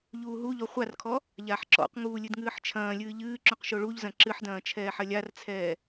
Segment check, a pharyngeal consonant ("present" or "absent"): present